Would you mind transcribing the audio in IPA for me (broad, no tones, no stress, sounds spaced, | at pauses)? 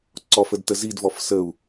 ǀ ɔ f ə d t ə z i d v ɔ f s ə u̯